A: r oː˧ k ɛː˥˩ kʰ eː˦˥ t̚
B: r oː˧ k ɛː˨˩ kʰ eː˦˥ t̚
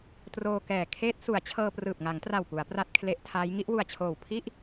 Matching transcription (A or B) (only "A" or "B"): B